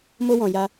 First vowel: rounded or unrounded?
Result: rounded